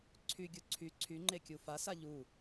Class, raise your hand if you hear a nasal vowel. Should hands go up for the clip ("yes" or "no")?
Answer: no